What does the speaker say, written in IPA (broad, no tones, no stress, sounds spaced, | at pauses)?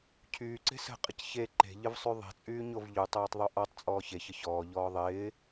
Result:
cʰ yː ǀ e̤ s ə̤ qʼ ə c ç e ǃ e̤ ʎ ə v sˤ y ðˤ e̤ t͡sʼ yː ɲ o v ʎ u tˤ oː tˤ ðˤ y ʔ ɔ tˤ t͡sʼ ɔː ç e ç ə ç ɔː ʎ ɔː ðˤ ɪː